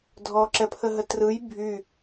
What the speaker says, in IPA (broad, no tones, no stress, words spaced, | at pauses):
dʱɔǁɛpʰəɦə trɯj bʱy